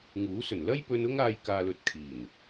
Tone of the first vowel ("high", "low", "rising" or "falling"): rising